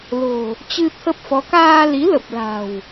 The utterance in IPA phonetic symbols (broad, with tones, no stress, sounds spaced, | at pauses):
l o̤˨˩ | t͡ɕ ɨ˧ t̪ʰ ə˦˥ p̚ f ɔ˨˦ k aː˧ l i˨˦ l ə˨˩ p̚ l a̤˨˩ w